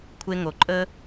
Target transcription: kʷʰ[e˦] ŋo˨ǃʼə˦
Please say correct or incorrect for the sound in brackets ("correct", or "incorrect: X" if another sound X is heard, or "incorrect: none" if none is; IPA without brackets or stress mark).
correct